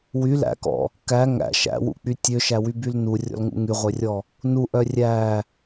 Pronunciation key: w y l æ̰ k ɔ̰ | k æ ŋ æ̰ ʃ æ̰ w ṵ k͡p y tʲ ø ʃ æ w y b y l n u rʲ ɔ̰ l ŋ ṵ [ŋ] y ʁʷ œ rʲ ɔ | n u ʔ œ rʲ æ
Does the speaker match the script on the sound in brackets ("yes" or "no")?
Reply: yes